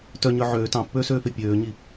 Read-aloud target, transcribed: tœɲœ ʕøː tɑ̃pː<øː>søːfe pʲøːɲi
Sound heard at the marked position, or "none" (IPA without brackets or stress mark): øː